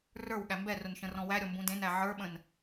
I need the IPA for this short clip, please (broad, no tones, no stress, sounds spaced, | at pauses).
r ə˞ w ɠ æ m b ɛ r ʊ n ʃ ə̃ r ɔ̃ w æ ɾʲ ɔ m b ũ d ẽ n æ ʕ ə˞ ɓ ə̃ n